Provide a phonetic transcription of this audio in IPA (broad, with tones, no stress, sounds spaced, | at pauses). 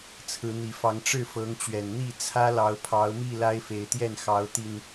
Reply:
t͡sʰ ɹ̩˨˦ n̪ i˨˩ f ɑ˨˦ ŋ ʈ͡ʂ ɻ̩˥˨ f ɤ˨˦ ŋ t͡ɕ ɥ ɛ˨˩ n n̪ i˥˨ t͡sʰ ä˦ l ɑ˨˦ ʊ̯ pʰ ɑ˨˦ ʊ̯ m i˥˨ l a˦ ɪ̯ f e˨˦ ɪ̯ t̪ j ɛ˥˨ n x ɑ˨˦ ʊ̯ t̪ i˨˩ n